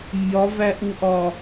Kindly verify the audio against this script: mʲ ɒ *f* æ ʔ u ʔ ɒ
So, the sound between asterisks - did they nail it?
no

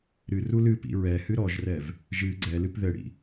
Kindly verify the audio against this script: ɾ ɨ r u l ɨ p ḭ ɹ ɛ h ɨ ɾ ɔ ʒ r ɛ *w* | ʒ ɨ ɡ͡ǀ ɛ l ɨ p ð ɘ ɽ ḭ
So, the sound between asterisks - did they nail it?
no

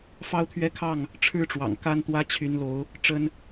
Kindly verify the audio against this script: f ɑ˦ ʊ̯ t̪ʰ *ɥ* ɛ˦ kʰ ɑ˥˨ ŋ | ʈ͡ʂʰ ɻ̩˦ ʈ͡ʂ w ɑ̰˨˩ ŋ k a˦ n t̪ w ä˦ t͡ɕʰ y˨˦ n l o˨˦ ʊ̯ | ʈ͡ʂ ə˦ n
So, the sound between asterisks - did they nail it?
yes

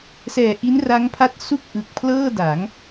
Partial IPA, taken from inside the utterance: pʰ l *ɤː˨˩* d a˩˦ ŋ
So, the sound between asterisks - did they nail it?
no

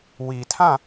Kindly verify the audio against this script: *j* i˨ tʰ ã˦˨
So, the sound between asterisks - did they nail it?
no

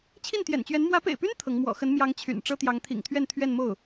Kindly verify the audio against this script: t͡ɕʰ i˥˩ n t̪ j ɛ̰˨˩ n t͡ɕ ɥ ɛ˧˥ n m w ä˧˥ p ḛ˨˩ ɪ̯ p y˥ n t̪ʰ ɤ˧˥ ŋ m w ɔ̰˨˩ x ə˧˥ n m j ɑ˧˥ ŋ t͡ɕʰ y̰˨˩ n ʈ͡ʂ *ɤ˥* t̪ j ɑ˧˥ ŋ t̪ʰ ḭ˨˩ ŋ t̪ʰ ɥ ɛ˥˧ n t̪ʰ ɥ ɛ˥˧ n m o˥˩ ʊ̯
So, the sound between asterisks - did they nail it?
yes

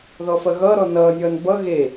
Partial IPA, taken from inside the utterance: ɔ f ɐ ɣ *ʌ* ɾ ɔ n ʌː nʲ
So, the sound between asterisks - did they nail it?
no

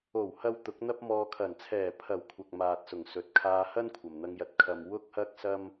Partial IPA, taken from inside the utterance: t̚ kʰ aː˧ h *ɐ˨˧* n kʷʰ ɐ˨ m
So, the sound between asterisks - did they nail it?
no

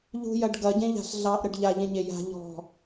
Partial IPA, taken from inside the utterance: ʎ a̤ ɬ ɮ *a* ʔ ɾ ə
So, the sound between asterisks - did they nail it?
no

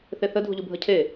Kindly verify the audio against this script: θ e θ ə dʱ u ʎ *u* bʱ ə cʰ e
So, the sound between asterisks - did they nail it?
yes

